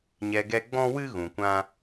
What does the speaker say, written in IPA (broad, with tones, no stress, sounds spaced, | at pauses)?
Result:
ɲ ɛ˧ ɡ ɛ˦ ɡ͡b ɔ̃˦ w ɨ˦ ɣ ũ˨ kʷ ã˦